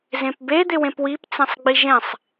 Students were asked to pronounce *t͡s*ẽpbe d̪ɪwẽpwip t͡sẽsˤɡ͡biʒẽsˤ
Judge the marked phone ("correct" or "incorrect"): incorrect